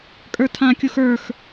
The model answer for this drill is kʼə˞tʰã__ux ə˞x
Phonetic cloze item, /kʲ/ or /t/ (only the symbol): kʲ